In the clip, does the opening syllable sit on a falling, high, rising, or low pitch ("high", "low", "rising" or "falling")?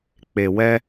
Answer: low